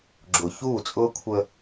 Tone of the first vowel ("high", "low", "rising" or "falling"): low